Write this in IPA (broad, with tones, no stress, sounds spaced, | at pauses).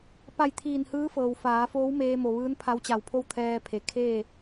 p a˧˩ j t̪ʰ iː˧˩ n h ɯː˧˥ f ɤː˩ w f aː˩˧ f oː˧˥ w m eː˧ m o˩ ʋ ɯː˧˥ n pʰ a˧˥ w t͡ɕ a˧˩ w pʰ o˥˨ w t̪ʰ ɛː˧ pʰ e˩ kʰ eː˥˨